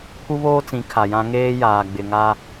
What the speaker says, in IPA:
pʰ u˦ β oː˦ t͡s ĩ˨˦ kʰ a˨ j ã˦ ŋ eː˦ j aː˨ ɡ͡b ɪ˨ ŋ a˦

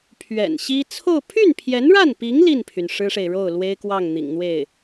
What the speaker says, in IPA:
pʰ ɥ ɛ̰˨˩ n ɕ i˥ t͡sʰ o˥˧ ʊ̯ pʰ y˥˩ n pʰ j ɛ˧˥ n ɻ a˥˩ n p i˧˥ ŋ l i˥˩ n pʰ y˩ n ʂ ɻ̩˥ ʂ e˨ ɪ̯ ɻ o˥˩ ʊ̯ l w e˥ ɪ̯ k w ɑ˥˩ ŋ n̪ ḭ˨˩ ŋ n̪ w e˥˩ ɪ̯

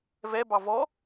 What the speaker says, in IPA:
v ɛ b ɑ v ɔ

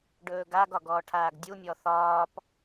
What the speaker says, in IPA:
ɖ ɵː ɡ a ɡ ɒ ɡ ɔː ʈʰ aː ɡ dʲ u mʲ ɔ θ ɒː p

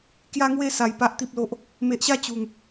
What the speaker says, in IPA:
k j a˧ ŋ w e˧ s a˧ j p a˦ ʔ t̪ i˦ p̚ l o˦ ʔ | m e˨ ʔ ɕ a˥˧ t͡ɕ u˨˩ ŋ

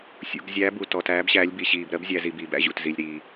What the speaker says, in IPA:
sʲ ṵ˩ ɡ zʲ æ˩˧ b u˩ t ɔ˩ t æː˩˧ b ɕ æː˩˧ lʲ b i˩ ɕ iː˩ b ɾ ɜ˩˧ b zʲ æ˩˧ z i˩ b iː˩ b æ̰˩˧ ʑ ṵ˩ t z i˩ lʲ ɾ iː˩

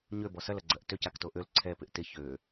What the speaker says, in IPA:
ɲ ø b ɔ s ɐ l ɐ ɡ͡ǀ ɐ ʔ t ø c a k t o ʔ ø l ǀʰ ɛ p ɪ ʔ t ɪ ç ø

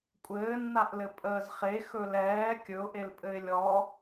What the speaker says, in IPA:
kʷʼ ɘː nː a ʔ l ɘ pʼ əː z χ e x ɵ l ɛː kʲ ɵ ʊ̯ ʔ e l pʼ ɘ ɪ̯ lʲ ɔ

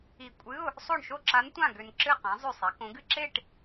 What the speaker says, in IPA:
i˧˩ kʷʼ ɨ˧˥˧ ʊ̯ | sˤ o˥˨ ɳ ʃ o˥˨ ǁ a˧˥ n tʷ ã˥˨ ɡ ø˧ n ǁ ɨ˥˨ q ã˩˧ zˤ ø˧˩ sˤ e˩˧ k õ˩˧ ɡ ɨ˥˨ ǁ e˥˨ ʈ

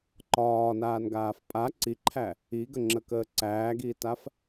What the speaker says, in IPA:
ǃ ɒː n aː n ɡ aː f pʼ a ǀ i ǃʰ æ | i ɡ ə ŋ͡ǁ ə k əː ǀ æː ɡ iː t a f

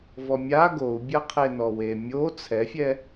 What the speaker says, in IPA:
v ɔ mʲ a ɡ o u̯ bʲ ɐ qʰ e n ɔ w e mʲ o t͡sʰ ɛ fʲ ɛ

